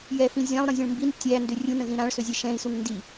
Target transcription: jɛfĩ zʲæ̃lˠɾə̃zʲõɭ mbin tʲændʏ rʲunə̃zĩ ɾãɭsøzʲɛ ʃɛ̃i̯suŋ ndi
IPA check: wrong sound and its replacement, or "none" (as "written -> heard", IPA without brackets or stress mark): none